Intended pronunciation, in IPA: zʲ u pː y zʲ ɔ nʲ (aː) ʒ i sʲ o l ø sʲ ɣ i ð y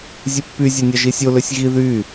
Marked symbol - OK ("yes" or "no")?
no